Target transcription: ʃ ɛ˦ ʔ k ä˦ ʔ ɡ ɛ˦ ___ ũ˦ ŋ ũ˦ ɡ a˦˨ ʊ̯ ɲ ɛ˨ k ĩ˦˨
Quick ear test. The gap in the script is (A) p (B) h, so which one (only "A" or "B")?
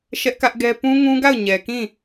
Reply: A